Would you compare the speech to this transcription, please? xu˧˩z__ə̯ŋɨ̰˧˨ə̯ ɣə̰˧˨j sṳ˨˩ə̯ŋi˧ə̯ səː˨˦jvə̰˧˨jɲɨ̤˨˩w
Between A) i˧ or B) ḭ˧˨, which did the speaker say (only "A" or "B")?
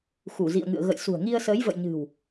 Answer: B